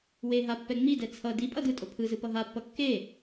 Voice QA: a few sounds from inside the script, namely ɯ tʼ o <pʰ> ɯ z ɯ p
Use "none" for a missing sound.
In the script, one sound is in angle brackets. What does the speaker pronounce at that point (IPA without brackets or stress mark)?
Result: pʰ